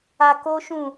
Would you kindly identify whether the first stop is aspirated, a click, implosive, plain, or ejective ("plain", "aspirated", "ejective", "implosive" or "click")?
plain